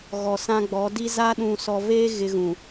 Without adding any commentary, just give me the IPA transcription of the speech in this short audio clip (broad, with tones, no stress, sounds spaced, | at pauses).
ɣ ɔ˨ s ã˦ ɡ͡b ɔ˨˦ d i˦ z aː˦ ɗ ũ˨ s ɔ˨ v eː˦ ɣ ɪ˦ ɣ ũ˨